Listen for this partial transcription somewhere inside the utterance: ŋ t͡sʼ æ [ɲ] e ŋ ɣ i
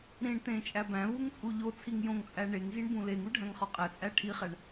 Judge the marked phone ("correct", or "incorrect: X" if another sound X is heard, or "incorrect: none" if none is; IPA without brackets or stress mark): incorrect: ɳ